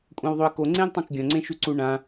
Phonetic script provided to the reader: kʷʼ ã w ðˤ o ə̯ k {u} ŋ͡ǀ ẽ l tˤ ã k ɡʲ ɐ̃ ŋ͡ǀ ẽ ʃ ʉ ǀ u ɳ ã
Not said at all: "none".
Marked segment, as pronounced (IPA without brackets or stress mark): o